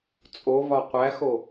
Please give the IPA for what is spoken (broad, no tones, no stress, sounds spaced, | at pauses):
t͡sʼ o v ɒ qʷ æ x o